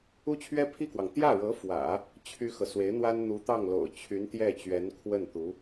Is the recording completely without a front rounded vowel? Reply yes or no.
no